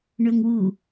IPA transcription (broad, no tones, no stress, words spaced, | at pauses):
ɳɵːŋwu